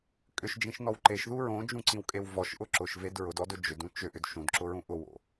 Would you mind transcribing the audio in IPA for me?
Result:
kʼʏʃd͡ʒĩʃnɔw ǃeʃðu ɹõd͡ʒũǀĩwkʼew vɔʃʔʊ ǁʊʃved ɹʊdɔdʊ d͡ʒʏdũ t͡ʃʏʔʏd ʃũdǁʊɹũ ʔʊwo̰

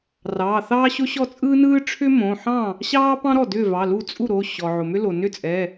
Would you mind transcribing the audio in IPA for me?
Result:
rɑː˩˧˩θɑː˥ɕo˥ ɕɔ˥˩t͡sʼɯː˥nɯː˥ ʈ͡ʂʰʏ˥mõ˩˧˩ ħɑ̃˥˩ | ɕɑː˥pɑ̃˥ɾɔ˥˩ dʏː˥˩vɑ˩˧˩lu˥˩ t͡sʼu˥˩ɾo˩˧˩ ɕɔ˩ ʕo˩mʏ˥lo˩ nʏ˥˩t͡sʼɛ˩˧˩

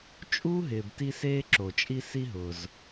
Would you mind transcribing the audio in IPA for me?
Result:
t͡ʃʼuː˥ɦɪː˨bti˦seː˦ ǁo˨t͡ʃʼi˥ si˦ɦʊː˨z

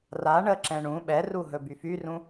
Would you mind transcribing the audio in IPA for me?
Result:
ra ɳəǁɛ̃ ɳũ ɓɛru ɦɵbyfyrũ

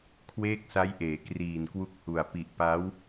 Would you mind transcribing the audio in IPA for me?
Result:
kʰweː˥˩k̚sa˦˥jʔeː˩˦ kriː˨˩nkwu˦˥k̚hu˨˩a̯ pi˨˩ʔpa˦˥w

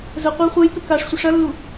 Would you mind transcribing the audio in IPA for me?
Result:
zə qʷɐy̯χʷɜjt̪ə kaʂsʷə ʂɐlːu

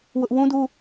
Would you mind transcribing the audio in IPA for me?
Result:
wʊ˦ʔ wũ˦du˦

